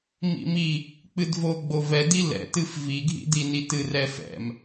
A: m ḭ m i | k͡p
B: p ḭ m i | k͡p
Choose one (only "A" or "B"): A